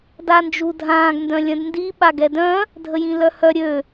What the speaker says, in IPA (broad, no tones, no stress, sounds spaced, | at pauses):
d a n d͡ʒ u dʱ ãː ɡ n d œ̃ lʲ œ̃ d n d i ɓ a ɡ ɛ d œ̃ | dʱ ə j ĩ l œ h œ ɾʲ ø